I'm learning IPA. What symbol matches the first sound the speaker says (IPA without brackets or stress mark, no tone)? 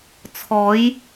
t͡sʰ